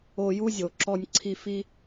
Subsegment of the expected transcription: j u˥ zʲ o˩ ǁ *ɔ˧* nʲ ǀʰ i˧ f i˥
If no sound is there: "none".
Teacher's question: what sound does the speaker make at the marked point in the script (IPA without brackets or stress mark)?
ɔ˧